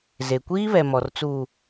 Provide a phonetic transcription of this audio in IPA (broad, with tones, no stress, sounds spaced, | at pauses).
z e˨ kʷ iː˦ β ɛ˨ m ɔ˨ r t͡s uː˨